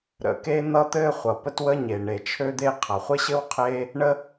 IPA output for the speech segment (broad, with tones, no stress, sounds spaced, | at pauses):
ɾ ə̰˩ k e˥ n̪ ʌ˥ t̪ ɘ˥ χʷ ʌ˩ p ə˥ t w ə˥ ɲ e˩ ɳ e˩ t͡ʃʰ ø˥ d̪ e˥ qʰ ʌ˩ χʷ ɘ˥ ɕ ɘ˥ w qʰ e˥ | ɳ ə˥